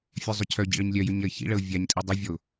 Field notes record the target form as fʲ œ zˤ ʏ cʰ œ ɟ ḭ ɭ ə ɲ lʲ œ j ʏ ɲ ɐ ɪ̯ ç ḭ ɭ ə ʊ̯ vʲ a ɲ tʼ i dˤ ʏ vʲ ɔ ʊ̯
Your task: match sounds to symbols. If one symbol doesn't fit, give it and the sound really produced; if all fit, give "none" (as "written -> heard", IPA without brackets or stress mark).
none